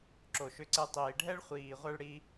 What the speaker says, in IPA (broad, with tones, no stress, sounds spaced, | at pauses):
ǁ o˩ ʃ ʏ˧ ǀ e˧ tˤ iː˩ ɖʱ ɛ˥ ɭ χʷ iː˩ ʁʷ ɛ˧ ɭ ɽ i˧